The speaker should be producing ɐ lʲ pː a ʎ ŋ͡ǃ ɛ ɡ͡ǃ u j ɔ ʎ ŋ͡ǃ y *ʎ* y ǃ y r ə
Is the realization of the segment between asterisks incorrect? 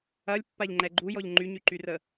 yes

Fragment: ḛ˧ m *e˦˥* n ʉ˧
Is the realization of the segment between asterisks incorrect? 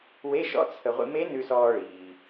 no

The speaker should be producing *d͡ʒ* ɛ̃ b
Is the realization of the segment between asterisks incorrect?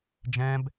no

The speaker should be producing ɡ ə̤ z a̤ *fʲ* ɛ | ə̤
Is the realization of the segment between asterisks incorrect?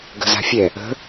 no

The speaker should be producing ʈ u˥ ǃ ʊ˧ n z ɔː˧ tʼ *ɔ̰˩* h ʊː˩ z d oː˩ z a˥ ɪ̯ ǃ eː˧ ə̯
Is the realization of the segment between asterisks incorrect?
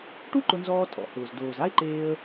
no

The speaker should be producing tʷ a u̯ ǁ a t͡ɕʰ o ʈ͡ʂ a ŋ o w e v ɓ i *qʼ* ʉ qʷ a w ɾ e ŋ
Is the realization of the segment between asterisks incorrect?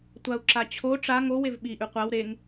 yes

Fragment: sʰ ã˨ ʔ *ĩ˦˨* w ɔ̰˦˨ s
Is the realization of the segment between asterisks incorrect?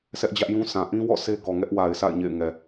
yes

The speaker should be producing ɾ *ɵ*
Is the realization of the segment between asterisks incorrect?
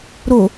yes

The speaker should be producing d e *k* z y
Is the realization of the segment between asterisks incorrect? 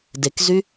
no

